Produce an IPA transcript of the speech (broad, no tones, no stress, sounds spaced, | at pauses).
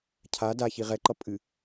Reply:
cʰ a d a ç i ʁ ɛ ǃ ʌ pʼ ɨ